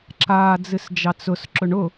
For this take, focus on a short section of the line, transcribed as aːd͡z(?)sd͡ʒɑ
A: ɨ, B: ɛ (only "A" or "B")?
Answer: A